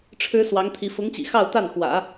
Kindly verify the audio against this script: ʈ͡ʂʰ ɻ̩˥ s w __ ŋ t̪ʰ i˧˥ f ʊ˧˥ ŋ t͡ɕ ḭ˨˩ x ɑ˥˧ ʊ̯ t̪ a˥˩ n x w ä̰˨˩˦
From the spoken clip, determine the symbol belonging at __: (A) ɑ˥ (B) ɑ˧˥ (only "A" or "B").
B